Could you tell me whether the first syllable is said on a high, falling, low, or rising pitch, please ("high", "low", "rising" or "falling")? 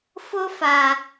high